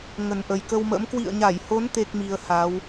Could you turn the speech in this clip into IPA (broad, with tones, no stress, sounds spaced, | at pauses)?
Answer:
ŋ ə˨˩ n ʔ ə˨˩ j k ə˧ w m ə̰˧˥ m k w ḭ˧˨ ə̯ ɲ a˧˩ j h o˨˦ n t̪ e˦˥ k̚ m i˧ ə̯ h a˨˦ w